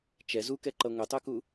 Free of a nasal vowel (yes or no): yes